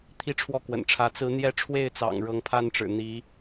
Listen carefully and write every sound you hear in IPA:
t̪ʰ i˥˧ ʈ͡ʂʰ w ɔ˥˩ k w ə̰˨˩ n ʈ͡ʂʰ ä˧˥ t͡s ɹ̩˧˥ n̪ j ɛ˥ ʈ͡ʂʰ w e˥˩ ɪ̯ t͡s ɑ̰˨˩ ŋ ɻ ɤ˧˥ ŋ pʰ a˥ n ʈ͡ʂ ɻ̩˨˩ n̪ i˧˥

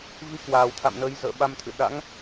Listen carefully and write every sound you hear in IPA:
v i˨˦ k w aː˨˩ w t̪ʰ a̰˧˨ m n əː˨˦ j z ə̰ː˧˨ ɓ a˧ m t̪ʰ ɨ̰˧˨ ɗ a̰˧˥ ŋ

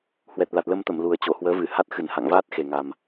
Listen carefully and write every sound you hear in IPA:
h w ɛ˨˩ t̚ l a˨˩ t̚ l ə˧ m t̪ ə˧˩ m l u˨˩ ə̯ t͡ɕ o˧˩ h w əː˨˦ v ɨ˧˩ h a˦˥ t̚ x ɨ˧˩ n h a̰˧˨ ŋ v aː˦˥ t̚ x e˨˩ ŋ a˨˩ m

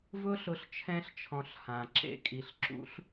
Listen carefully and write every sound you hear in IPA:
v ʊ˦ ɬ ʊ˧ ɬ t͡ʃʰ ɛ̃˧ ɬ t͡ʃʰ ɔ̃˨ ɬ h ã˨ ǁ ḛ˧ kʼ i˨ ɬ ǁ ṵ˦ ɬ

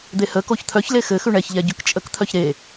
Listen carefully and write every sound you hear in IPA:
d̪ e h ə k o ç t̪ʰ œ ç l e x ɘ x ʉ ɳ ɛ ç ʎ ɛ ɟ ʉ k t͡ʃʼ ə k t̪ʰ œ ç ɾ e

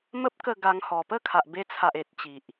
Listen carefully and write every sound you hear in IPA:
m ə˦ p̚ k ə˥˧ ɡ a˧ ŋ h ɔ˨˩ p ə˦ kʰ a˨ ʔ b e˧ t͡sʰ a˨ ʔ e˨ t̚ t͡ɕ i˨ ʔ

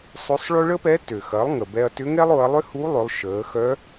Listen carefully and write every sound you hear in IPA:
sˤ ø˧˥ sˤ ɭ ø˥ ɭ ə˥ p ɛ˧˥ t ø˩ x ɐ˩˧ lˠ ŋ ə˩ b ɛ˧ ɐ̯ t ʏ˧˥ ŋ ɛ˥ lˠ ʊ˩˧ ɐ̯ lˠ ʏ˥ h u˧˥ lˠ ʏ˩˧ lˠ ʃ əː˩˧ x œ˧˥

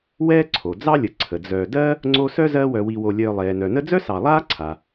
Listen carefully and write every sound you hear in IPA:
w ɛː˥ ǀʰ o˩ d͡z ɑ˥ lʲ ə˨ ǀʰ ə˩ d͡z œː˨ d ɜ˥ | ŋ͡ǀ o˦ s œ˥ z ɜ˦ w œ˨ w i˨ w o˨ lʲ œː˨ lˠ ɛː˩ n œ˩ n ə˦ d͡z œ˥ s ɑ˨ lˠ aː˥ ǀʰ a˩

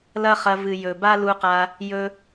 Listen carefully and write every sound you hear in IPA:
l ɐ˦ χ ɐ˧ v ɨ˨ j ɵ˨ b a˦ l u˧ q a˧ | j ɵ˧

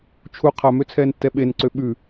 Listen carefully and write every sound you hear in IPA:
t͡ʃʰ u qʰ a m ø t͡sʰ ɛː n tː ɛ ɓ e n ǀ ø ɓ ʉ

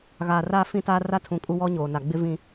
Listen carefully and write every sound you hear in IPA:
ɣ aː˨ r aː˦ f ĩ˦ t aː˦ r a˦ tʰ ũ˨ kʼ u˦ w ɔ˦ ɲ oː˨ n a˨ ɡ͡b ɪ˦ v ĩ˦

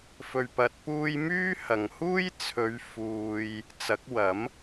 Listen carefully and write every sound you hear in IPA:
f ɵ˧ ɥ p ɐ˧ t̚ p uː˥ j m yː˥ h ɐ˨ ŋ h uː˥ j t͡sʰ ɵ˨˧ ɥ f uː˨ j | t͡s ɐ˨˥ k̚ w ɐ˨˥ m

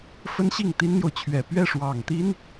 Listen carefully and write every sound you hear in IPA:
f ə˥ n ɕ i˥˩ ŋ t̪ i˥ n n̪ j o˨ ʊ̯ t͡ɕʰ ɥ ɛ˨˩ p ɥ ɛ˥˩ ʂ w ɑ˨˩ ŋ t̪ i˥ n

